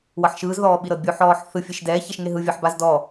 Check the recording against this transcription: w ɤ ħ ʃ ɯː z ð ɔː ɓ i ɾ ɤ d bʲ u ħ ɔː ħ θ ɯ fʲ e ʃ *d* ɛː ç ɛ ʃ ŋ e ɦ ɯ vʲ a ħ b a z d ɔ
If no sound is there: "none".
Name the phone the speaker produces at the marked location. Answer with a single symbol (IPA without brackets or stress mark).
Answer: d